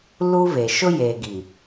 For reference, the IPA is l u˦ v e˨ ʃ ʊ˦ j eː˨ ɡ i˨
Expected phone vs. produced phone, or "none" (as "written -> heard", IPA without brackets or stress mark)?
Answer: none